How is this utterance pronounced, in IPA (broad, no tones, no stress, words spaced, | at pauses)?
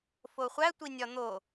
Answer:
foχʷæ tʷinʲɒn̪o